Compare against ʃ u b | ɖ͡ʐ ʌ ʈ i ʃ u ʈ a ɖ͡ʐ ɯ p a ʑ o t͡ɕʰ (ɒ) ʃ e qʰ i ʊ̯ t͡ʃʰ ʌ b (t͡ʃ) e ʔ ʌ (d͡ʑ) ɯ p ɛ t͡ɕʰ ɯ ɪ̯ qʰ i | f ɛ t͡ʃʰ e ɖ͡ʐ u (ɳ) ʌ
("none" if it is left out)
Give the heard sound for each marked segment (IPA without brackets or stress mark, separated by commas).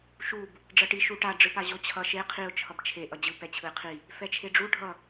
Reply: ʌ, t͡ʃʰ, d͡ʑ, ɖʱ